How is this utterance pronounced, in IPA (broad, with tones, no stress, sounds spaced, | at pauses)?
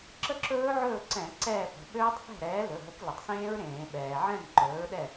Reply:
ǁ ə˥˨ ǁ ɵː˦˥ ʕ ɵː˥˨ ǀ ɛ̃˧˩˧ ǀ ɛː˥˨ p ə̤˩˧˩ ɓ øː˦˥ tˤ θ ɛ̤˥˨ ɾ ɛː˨˥ l ɵ˩˧˩ ɦ ə˨˥ k l ɪ˩ tˤ s ẽː˦˥ ɹ ɾ ẽː˧˩˧ ɓ ɛː˩ ʕ ɛ̃˥˨ m ǃ ɵː˨˥ ɹ ɗ ɛ˥˨